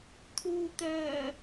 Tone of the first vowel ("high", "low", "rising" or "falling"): low